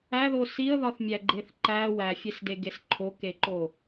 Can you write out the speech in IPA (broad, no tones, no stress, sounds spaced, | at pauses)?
æ ð o s i ə̯ ð ɒ θ mʲ æ ɡ͡ǃ e θ ǃ æ w æ fʲ e s d e ɡ e s ǃʰ o k e ǃ o